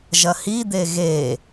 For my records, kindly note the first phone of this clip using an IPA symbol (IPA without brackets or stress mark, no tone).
ʒ